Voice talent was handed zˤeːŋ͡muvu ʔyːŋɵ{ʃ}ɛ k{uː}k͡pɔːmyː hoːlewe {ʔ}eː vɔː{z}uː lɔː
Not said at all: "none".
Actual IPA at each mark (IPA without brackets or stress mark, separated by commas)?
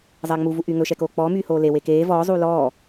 ʃ, oː, k, zˤ